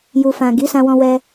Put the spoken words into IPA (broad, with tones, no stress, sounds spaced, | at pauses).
j u˨ f ã˨ ɡ i˨˦ s ã˧ w ɔ̃˧ w ɛ˧